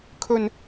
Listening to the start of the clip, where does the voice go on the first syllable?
low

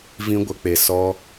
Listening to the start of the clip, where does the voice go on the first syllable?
high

